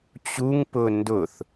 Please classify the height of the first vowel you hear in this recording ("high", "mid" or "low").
high